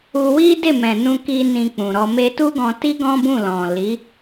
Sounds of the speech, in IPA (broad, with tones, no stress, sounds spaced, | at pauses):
u˧ w i˦ d e˦˨ m ɛ̃˨ n ũ˧ k i˧ n ĩ˧ k͡p ũ˨ ɾ ɔ˧ m e˧ t u˦ ɡ ɔ̃˧ t i˦ ɡ ɔ̃˦ b ũ˦˨ l ɔ̃˨ l i˨˦